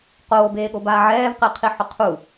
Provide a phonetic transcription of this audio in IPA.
qoːbeːɠobaː ʕɛːvqɪːqʰiħʊ qʰu

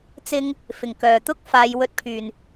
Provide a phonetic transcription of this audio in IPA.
t͡sɪ˥ŋ | fɪ˨˩ŋkœː˨˩ t̪ʊ˥k̚faː˨˧j wɵ˧t̚pʰyː˨˩n

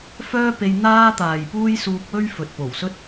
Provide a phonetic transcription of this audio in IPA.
fœː˥pe˧j n̪aː˥t̪aː˨jpuː˥j suː˧k̚wɵ˥ɥ fɵ˨t̚po˨˩wsɵ˥t̚

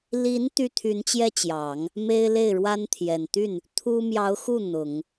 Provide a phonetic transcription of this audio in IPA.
li˧˥n t̪y˥t̪ʰy˧˥nt͡ɕjɛ˥t͡ɕjɑ˨˩˦ŋ | me˥ɪ̯le˥˩ɪ̯ ɻwa˥nt̪ʰjɛ˨˩n t̪y˥˩n | t̪ʰu˥ mjɑ˧˥ʊ̯xu˥˩ n̪ʊ˨˩˦ŋ

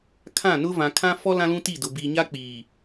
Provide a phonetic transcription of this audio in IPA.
kʰã˦˨nʊ˦ vã˨kʰã˦fɔ˦ lã˦lũ˦ti˦˨dʊ˨ bi˨ɲa˦k͡piː˨

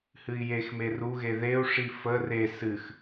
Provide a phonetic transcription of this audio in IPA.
hɨi̯jexme ruɣe ðeu̯ʂi fə re sɨx

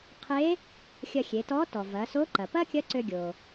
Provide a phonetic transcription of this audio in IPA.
qʰe˧˥ | xʲɐ˧xʲe˩˧tɔ˧˥ tɔ˩vɐ˩˧so˧˥ǃɐ˩ pɐ˥kʲɐ˧˥ ǀø˧ɡʲo˩

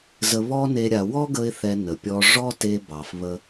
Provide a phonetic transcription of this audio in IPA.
zə˧βɔ˦ne˧ ɾʲa˨wɔ˦ɡə˧ɪ̯ θɛ˧nə˨pʲɔ˧ ʐɔ˦te˧bɑ˨f βə˧

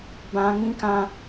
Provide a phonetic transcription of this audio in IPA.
bã˧ ŋĩ˦kã˦

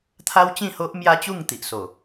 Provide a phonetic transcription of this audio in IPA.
t̪ʰa˦wt͡ɕĩ˥˧ ho˦ʔmja˦t͡ɕu˥˧ŋt̪i˨ʔ so˨˩

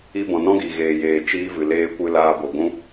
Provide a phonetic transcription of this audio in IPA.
i˧bɔ̃˨nɔ̃˦ɡi˨ ɣeː˨jeː˨ t͡ʃiː˧vɨ˨ leː˧kʷɨ˧ laː˦bo˧ ɡʷũ˦

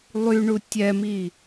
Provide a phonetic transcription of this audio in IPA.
lˠyɳu tʲɛmi

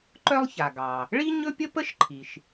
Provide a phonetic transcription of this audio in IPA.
ǃœ˥lˠça˩ ɡɑ˩ | ɭi˥ ɲɵ˥pʲə˥pə˥ʃ ǃʰi˩ʃ

